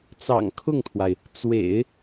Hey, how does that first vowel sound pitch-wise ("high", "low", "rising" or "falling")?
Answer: low